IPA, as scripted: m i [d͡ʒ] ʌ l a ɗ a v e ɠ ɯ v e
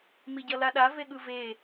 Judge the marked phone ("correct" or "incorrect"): incorrect